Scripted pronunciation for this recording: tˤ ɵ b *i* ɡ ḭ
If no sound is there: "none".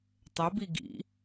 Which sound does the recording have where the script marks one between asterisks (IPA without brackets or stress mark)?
i